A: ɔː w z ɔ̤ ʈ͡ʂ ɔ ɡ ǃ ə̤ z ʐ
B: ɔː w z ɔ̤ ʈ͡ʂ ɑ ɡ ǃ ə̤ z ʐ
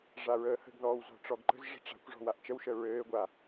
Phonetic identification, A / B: A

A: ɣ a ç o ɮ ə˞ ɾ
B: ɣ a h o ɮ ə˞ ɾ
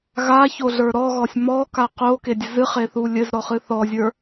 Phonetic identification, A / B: A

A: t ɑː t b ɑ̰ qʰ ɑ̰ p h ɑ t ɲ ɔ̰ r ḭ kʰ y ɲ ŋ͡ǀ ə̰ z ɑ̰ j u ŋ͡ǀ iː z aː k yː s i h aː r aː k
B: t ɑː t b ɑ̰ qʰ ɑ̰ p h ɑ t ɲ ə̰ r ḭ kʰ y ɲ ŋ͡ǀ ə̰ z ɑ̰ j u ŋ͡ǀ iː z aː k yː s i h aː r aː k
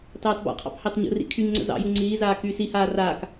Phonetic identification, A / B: B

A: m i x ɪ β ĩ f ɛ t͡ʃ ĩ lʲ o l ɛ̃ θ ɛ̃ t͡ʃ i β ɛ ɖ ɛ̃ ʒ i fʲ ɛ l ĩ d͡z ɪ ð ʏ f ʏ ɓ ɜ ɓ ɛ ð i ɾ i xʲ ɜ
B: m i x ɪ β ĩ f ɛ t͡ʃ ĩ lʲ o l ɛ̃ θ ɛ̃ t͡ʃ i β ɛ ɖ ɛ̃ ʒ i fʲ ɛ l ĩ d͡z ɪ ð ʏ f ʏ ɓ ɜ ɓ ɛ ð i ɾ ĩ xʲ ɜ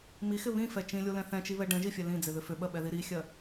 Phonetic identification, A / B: A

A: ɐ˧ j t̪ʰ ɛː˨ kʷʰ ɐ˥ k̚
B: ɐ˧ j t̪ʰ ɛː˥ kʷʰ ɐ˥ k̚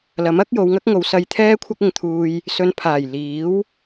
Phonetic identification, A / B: B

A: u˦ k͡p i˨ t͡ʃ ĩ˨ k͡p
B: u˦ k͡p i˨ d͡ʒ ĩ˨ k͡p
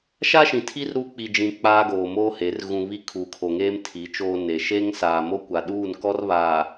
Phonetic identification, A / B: B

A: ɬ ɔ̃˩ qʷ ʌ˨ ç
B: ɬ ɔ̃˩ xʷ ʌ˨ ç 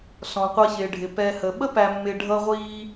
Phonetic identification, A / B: A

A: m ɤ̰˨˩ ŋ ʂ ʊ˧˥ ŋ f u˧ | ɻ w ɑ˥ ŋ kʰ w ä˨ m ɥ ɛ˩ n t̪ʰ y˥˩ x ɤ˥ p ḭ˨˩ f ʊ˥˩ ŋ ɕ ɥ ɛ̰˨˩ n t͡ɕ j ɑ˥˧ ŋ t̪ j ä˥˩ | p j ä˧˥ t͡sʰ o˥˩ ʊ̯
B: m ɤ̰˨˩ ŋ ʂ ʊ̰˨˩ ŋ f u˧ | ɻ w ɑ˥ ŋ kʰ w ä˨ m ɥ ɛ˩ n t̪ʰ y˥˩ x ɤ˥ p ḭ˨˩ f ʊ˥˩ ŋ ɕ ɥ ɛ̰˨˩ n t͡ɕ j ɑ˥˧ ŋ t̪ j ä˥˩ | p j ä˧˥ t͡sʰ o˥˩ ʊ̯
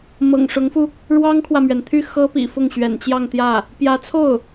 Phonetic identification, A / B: A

